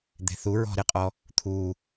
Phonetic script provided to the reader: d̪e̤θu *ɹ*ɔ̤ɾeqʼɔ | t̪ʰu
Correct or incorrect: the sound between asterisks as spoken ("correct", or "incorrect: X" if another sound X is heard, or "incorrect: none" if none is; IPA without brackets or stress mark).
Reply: correct